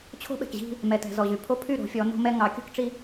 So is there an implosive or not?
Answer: yes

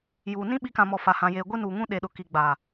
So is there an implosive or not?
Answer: yes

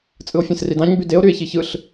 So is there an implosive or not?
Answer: no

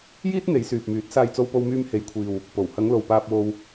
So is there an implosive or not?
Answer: no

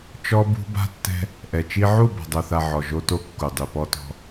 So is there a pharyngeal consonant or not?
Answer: yes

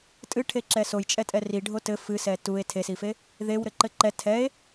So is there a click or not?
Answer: yes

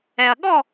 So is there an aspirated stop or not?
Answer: no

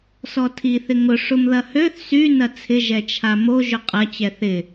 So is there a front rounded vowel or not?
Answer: yes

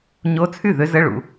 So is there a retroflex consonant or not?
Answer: yes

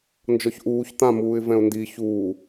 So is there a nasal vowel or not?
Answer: yes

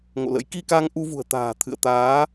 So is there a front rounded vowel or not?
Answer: no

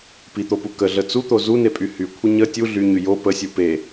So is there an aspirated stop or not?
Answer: yes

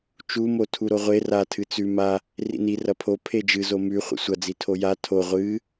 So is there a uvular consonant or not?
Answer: yes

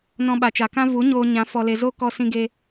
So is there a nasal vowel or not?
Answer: yes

